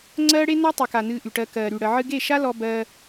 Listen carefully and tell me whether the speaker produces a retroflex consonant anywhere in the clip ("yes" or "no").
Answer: yes